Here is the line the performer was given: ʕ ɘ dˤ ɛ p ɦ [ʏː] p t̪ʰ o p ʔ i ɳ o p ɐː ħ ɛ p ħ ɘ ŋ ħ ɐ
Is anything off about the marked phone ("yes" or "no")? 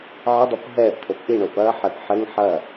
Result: yes